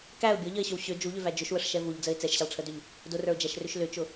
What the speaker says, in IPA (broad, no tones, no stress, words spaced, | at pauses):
kæʊ̯ bʲʊʎəɪ̯ɕʏw ɕʏ d͡ʒuʎʏvæ d͡ʒʏʃwəʂʃɛ vuʎd͡zəɪ̯ t͡sɛʃɕɛlˠʈ͡ʂʰədʏʎ | dʊrə˞ʊ̯d͡ʒæʃrʏʃ lʏt͡ʃʊ